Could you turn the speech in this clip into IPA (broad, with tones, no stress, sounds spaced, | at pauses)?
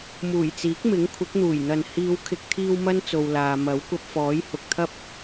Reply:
m uː˨˩ j t͡s iː˨˥ k̚ m ɪ˨˥ ŋ kʷʰ ɪ˨˥ k̚ n̪ uː˨˩ j n̪ ɐ˨ n h iː˨˧ w kʰ ɪ˨ k̚ t̪ʰ iː˧ w m ɐ˥ n t͡s o˨ w l aː˨ m ɐ˨˥ w kʷ ɐ˧ p̚ f ɔː˨˥ j h ʊ˨ k̚ t̪ʰ ɐ˥ p̚